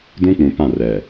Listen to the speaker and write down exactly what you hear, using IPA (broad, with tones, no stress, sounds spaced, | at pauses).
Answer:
d ũ˦ k͡p ũ˨ p ã˦˨ r ɛ˨